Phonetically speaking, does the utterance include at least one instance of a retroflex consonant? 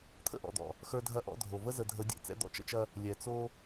no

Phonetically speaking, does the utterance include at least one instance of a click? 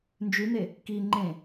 yes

